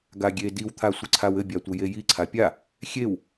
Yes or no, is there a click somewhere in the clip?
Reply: yes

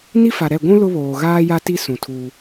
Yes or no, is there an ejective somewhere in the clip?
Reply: no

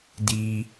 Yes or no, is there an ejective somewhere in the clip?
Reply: no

